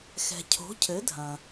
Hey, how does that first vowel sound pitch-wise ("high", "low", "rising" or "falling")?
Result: low